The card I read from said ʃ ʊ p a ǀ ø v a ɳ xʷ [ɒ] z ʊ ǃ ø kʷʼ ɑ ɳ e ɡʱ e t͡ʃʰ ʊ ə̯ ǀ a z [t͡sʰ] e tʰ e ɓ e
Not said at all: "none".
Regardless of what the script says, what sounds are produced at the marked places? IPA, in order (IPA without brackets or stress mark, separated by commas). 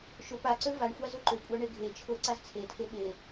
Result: ɑ, t͡sʰ